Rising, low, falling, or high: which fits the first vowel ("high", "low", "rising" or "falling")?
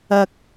low